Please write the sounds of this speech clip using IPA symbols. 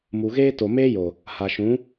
m u˨ ɣ eː˦ t o˨ m eː˦ j o˨ | h a˨ ʃ ũ˨˦

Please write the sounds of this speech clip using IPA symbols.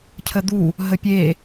cʰ ə d̪ u | ɦ ə pʲ e

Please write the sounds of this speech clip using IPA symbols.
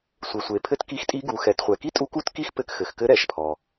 sʷ ɘ˩ sʷ e˩ pʰ ɘ˧ t k i˧˥ x tʼ i˧˥ ɡ u˩˧ x ɛ˩˧ t χʷ ɛ˩ k i˥ tʼ u˧˥ k u˥ t k i˥ x p ɘ˧ k x ɘ˩ x k ɘ˧˥ ɾ ɛ˩ ʃ pʰ ɔ˩

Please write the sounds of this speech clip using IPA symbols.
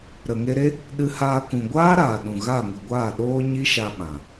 ɾ ə˨ ŋ e˧ ɾ e˦ | ɗ ɨ˧ h aː˧ k ũ˨ ɡʷ aː˦ ɾ aː˨ ɗ ũ˨ ɣ a˦˨ ŋ ɨ˨ ɡʷ aː˦˨ ɗ oː˦ ɲ i˦ ʃ a˧ ɓ ã˨

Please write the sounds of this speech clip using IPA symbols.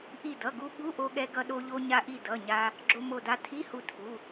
ʔ i˧˩ d ʌ˩˧˩ ɡ u˧ ɓ u˧˥˧ ʔ o˧ ɠ ɛ˧ ɡ ʌ˧ ɗ o˧ ʎ o˧ ɲ a˧ ʔ i˧˩ d ʌ˩˧˩ ɲ a˧ | ɡ͡ǁ o˧ m o˧˩ d a˧ tʰ i˧˥˧ h u˧˩ tʰ u˩˧˩

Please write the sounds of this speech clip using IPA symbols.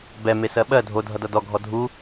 b ɛ m e s ɜ ɓ ɜ dʱ o dʱ ʌ d ʌ d ɔ ɡʱ ɔ dʱ u

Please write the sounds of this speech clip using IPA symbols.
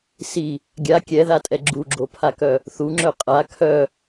s i | ɡʲ a kʲ ɛ ð a tʼ ɛ ɡ͡ǁ u ɡ͡ǁ o pʰ a k œ | θ u ŋ͡ǁ œ qʼ a kʰ œ

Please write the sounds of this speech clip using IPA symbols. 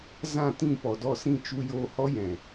z ã˦˨ t ĩ˦˨ p ɔ˨ d ɔ˦˨ s ĩ˦˨ t͡ʃ u˧ j oː˧ h ɔ˦ j ɛ̃˨

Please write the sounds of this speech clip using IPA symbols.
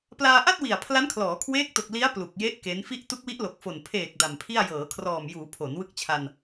p l aː˧ ʔ a˥˩ t̚ w i˨˩ a̯ pʰ l a˦˥ n kʰ l ɔː˩˦ kʰ w eː˦˥ k̚ t o˨˩ k̚ l i˦˥ a̯ p l u˨˩ k̚ j e˦˥ ʔ k e˦˥ n f i˦˥ ʔ t u˦˥ k̚ w i˦˥ ʔ l o˨˩ k̚ f o˨˩ n pʰ eː˨˩ k̚ d a˨˩ m pʰ i˥˩ a̯ j ɤː˩˦ kʰ r ɔː˨˩ m j uː˩˦ pʰ o˩˦ n w ɯ˦˥ k̚ t͡ɕʰ a˧ n

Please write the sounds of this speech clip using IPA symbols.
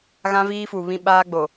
ɣ ã˦ v iː˦ f u˨ β ĩ˦ ɓ aː˦ ɡ͡b o˨

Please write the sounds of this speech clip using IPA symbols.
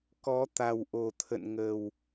k ɔ˨˦ t̪ a˨˩ w ʔ o˨˩ t̪ʰ ə̰˧˨ n ŋ ə˨˩ w

